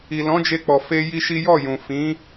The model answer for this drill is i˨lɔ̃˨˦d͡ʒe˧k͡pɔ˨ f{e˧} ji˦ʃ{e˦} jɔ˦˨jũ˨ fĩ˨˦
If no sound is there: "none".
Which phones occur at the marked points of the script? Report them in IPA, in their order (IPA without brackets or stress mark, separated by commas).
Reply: e˧, i˦